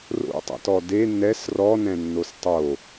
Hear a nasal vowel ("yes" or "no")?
yes